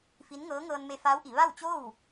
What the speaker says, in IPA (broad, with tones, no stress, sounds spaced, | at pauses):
f i˧˥ n ŋ ɤː˧˥ ŋ ɤː˧ n m e˧ f aː˧˥ w ʔ i˩˧ ʋ a˥˨ w t͡ɕ o˥˨ w